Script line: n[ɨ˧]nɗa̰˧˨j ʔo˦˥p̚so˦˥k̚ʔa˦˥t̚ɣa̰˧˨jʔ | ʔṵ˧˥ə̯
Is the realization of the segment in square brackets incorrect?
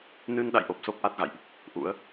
no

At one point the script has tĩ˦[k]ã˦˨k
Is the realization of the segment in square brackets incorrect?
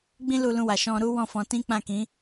yes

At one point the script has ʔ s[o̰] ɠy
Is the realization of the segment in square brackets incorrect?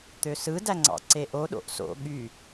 no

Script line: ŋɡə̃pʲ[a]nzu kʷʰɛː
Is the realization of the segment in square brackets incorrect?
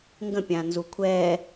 yes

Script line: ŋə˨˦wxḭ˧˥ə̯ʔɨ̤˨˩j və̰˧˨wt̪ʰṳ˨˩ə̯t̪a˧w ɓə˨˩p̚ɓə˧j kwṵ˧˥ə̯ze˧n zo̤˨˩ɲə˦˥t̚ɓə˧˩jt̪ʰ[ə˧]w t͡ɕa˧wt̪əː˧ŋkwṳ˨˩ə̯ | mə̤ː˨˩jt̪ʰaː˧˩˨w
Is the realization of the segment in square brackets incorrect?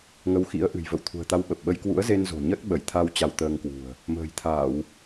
yes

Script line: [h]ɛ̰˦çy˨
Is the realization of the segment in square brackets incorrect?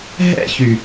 yes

